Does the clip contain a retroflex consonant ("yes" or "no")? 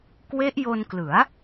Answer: no